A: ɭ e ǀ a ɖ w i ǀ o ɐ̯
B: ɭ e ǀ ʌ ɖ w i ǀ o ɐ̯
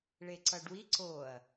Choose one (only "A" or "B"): B